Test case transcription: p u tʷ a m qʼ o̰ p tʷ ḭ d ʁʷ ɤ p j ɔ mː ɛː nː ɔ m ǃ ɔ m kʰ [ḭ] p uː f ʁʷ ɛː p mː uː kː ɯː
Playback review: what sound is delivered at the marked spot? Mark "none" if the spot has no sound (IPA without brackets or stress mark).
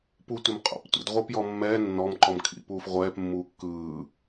ḭ